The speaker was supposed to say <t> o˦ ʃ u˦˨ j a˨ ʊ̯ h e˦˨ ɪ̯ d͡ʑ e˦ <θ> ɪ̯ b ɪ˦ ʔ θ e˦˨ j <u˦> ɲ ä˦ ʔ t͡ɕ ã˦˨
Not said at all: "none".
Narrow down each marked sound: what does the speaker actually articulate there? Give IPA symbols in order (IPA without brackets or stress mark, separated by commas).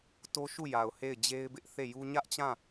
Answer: t, none, u˦